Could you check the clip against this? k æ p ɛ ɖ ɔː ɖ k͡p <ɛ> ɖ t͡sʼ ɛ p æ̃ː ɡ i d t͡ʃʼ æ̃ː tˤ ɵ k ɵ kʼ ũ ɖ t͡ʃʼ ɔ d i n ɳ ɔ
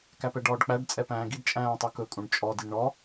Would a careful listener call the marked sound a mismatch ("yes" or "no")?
yes